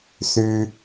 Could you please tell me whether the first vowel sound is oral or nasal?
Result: oral